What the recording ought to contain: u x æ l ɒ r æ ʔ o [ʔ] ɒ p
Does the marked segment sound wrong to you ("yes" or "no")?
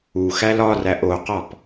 yes